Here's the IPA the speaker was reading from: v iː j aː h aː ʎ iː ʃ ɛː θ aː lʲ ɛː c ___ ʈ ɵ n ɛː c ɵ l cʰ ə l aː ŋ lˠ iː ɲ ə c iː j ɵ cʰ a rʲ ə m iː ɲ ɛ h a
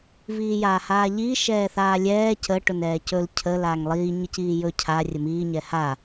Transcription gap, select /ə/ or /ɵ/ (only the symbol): ə